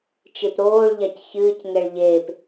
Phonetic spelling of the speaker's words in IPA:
t͡ʃ e p ɾ oː ɭ ʎ a c ç ɨː c ŋ ɛ ɭ ʎ eː p

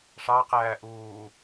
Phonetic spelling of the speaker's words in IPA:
ʂ ɑ q æː ʔ uː

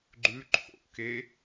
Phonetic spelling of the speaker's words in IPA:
ɡ͡ǃ ʉ ǃʰ o̰ k e

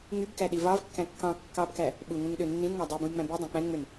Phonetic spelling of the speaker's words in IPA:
ŋ y b k æ ɗ i v ɑ v kː æ̃ kː ɑ̃ kː ɑ b k æ | ɓ u ŋ ũ ŋ ɗ ø nː ĩ n ŋ ɑ dˤ y b ũ j ŋ͡m æ̃ b i dˤ æ̃ k͡p æ̃ n ŋ͡m ø n

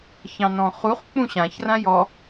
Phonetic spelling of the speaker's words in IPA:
ç ɑ̃ n ɔ̃ χ u χ k͡p ũ ɕ ã ç r ã j ɔ

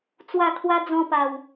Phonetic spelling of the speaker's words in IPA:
t͡s w a˥˧ kʰ w a˦ d͡z ɔ̃˧ p a˨˩ w

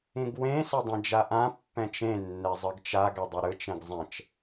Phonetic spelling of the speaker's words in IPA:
ĩ ɡ w ẽ s a dˤ ẽ d͡ʒ a ʔ ã pː ɛ̃ t͡ʃ ẽ nː ɛ zˤ ɯ ɡ t͡ʃ a ɡ ɛ dˤ o ɾ ɯ t͡ʃ ɛ̃ ɡ zˤ ɛ̃ t͡ʃ

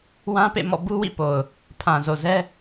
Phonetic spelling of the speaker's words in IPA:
w ã˦ p ḛ˦˨ m ɔ̰˦˨ b u˦ w ḭ˦˨ p o˨ ʊ̯ | pʰ ã˨ z o˨ z ɛ˦

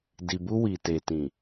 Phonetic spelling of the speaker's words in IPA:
d i˨ b u˧ w i˨ t e˨ t ĩ˨

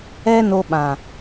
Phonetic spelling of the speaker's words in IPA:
ɛ˦ n o˧ ɓ ã˨

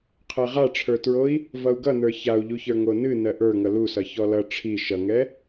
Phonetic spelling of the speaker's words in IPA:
qʰ ɛ ʁ a ʈ͡ʂʰ ə˞ t ɹ o i̯ | v ʌ u̯ ɡ ʌ n ə˞ ç a u̯ ʎ u ç ə˞ ŋ o n ɨ n ɜ ʔ ə˞ ŋ ʌ l u s ʌ ç ɔ l ʌ ʈ͡ʂʰ i ʃ ʌ ŋ ɛ

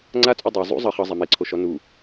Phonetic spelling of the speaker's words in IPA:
ŋ͡ǀ a t͡sʼ u dˤ e zˤ ṵ zˤ ɤ χ ɤ zˤ a m e ǀʰ o ʃ ɔ n u

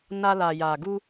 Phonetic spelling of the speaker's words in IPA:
n a˧ l a˨ j a˨ ɡ u˧

